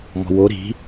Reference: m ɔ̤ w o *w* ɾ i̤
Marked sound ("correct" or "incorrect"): incorrect